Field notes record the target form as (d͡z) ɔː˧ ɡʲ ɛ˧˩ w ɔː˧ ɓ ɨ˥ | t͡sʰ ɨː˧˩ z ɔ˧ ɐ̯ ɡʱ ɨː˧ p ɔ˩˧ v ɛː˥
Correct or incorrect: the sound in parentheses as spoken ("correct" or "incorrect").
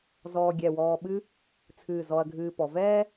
incorrect